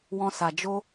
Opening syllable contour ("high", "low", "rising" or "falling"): high